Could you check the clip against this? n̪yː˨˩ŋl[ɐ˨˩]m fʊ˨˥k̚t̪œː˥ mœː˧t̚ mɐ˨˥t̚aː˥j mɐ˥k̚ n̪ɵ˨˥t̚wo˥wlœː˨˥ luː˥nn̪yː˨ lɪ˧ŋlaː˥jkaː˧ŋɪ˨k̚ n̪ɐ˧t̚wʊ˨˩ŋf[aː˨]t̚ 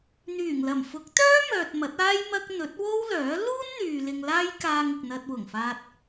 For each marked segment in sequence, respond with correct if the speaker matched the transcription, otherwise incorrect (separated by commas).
correct, incorrect